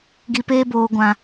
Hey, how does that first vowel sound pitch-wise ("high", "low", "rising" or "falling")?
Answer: low